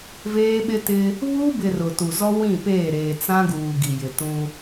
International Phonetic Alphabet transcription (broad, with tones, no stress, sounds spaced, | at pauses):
v eː˦ ɓ ɪ˦ t ɪ˦ | β uː˦ b ɪ˨ r ʊ˨ t u˨ z ɔ˦ w ĩ˦˨ p eː˦˨ ɾ eː˨ t͡s ã˦ ɡ uː˨ ɡ i˨ j ɪ˨ t ũ˦